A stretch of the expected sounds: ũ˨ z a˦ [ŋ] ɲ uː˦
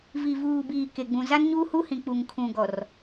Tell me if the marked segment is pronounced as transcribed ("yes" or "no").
no